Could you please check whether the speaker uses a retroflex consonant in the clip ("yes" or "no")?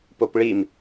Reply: yes